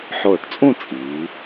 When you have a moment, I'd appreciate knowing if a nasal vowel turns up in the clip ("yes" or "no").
yes